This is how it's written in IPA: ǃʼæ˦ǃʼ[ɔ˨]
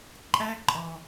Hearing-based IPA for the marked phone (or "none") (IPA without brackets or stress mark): ɔ˨